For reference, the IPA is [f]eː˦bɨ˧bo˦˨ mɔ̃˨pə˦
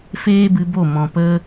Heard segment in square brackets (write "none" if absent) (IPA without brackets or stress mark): f